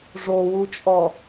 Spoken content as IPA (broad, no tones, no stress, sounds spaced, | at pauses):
ʐ o w u t͡ʃʼ ɔ